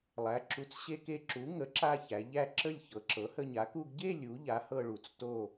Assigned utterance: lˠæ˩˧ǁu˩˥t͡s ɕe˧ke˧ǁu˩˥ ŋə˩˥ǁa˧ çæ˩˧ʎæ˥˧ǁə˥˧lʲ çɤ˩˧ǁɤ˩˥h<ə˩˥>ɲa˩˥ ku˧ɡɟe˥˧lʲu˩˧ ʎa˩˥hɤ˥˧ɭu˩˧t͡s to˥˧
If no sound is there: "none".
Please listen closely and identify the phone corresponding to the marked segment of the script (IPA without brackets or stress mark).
ə˧